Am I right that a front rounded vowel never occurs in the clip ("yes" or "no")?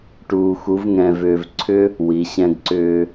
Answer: no